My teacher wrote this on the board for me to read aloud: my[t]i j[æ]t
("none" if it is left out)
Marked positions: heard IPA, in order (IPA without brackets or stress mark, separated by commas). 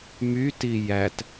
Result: t, æ